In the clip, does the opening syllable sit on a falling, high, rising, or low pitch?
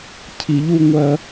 low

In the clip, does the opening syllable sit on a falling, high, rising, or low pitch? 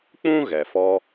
high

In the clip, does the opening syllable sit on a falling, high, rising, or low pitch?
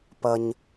high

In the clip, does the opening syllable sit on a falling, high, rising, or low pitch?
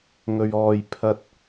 low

